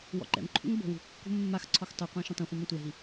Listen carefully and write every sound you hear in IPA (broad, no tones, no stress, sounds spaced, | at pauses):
w ɔ̰ ǃ ɛ̰ m ǃʰ ṵ ŋ b o̤ w ṳ kː ṳ mː a x ǀʰ ɔ x tˤ u qʷ ã ʃ ũ tˤ ĩ χʷ ɛ̃ m ɔ̃ tʷ ɛ ɦ i